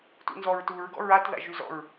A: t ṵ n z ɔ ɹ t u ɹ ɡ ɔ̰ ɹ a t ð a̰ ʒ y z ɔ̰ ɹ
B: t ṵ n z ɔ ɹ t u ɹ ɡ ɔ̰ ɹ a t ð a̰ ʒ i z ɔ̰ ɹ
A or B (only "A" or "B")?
A